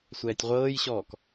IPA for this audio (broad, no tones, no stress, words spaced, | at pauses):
sʷɛːtʲʁʷɤːjɕɔːk